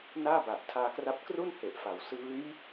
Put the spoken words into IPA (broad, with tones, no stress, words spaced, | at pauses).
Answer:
naː˥˩ba˨˩ʔtʰaː˧kra˦˥p̚ kru˥˩nhe˨˩ʔfa˩˦w sɯː˦˥j